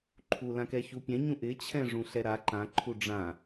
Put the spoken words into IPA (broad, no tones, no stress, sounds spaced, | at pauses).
ǃʰ u l ã k ɛ ç u pʲ ɛ̃ ɲ ũ ʔ ɪ t͡ɕʰ ɛ̃ ʐ ũ ɬ ɛ ɾ a ǃ ã ǃʰ u ɖ͡ʐ ã